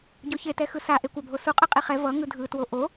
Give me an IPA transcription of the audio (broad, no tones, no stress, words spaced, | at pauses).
ɟoçetɛxɯ saʔekʷabʱo suqʼɯ qʼiχɛ vʌ ŋɯdʱɯtwo ʔo